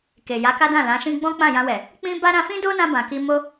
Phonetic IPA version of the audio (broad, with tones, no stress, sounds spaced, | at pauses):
k e˨ j a˨˦ k a˦ d ã˦˨ l ã˨˦ ʃ ĩ˦ ɡ͡b ɔ̃˦ k͡p ã˦˨ j ã˧ w ɛ˨ | k͡p ĩ˦ b a˦ ɾ ã˧ f ĩ˦ d o˦ n ã˧ b ã˨ k i˧ m o˦